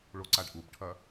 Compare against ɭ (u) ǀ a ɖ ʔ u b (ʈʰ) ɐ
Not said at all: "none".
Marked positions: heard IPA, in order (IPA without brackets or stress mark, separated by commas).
o, ʈʰ